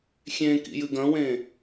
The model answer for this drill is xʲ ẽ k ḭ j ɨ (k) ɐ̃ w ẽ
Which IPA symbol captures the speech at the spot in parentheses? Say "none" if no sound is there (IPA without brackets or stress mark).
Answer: ɡ